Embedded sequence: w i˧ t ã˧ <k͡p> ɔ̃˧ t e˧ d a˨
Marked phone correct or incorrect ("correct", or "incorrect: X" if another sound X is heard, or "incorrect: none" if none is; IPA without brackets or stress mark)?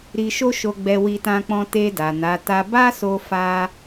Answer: correct